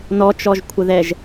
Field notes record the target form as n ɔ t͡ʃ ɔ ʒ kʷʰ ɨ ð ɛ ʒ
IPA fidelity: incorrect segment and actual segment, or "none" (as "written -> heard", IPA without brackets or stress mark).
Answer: ɨ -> ə